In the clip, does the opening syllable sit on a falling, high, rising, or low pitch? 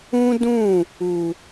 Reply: high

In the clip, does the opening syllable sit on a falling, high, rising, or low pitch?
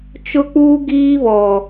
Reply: high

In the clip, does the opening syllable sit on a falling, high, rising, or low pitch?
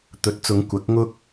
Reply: rising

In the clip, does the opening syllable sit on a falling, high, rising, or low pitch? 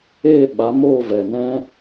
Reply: falling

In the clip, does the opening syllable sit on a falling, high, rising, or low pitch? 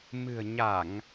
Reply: low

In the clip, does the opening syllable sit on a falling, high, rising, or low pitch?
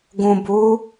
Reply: low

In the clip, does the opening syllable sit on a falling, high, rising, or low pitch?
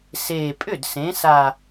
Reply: low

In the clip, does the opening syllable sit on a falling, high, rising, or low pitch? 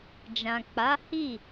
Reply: low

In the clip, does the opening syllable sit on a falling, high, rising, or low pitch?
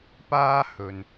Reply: high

